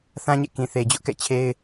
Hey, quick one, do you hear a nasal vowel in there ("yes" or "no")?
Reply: yes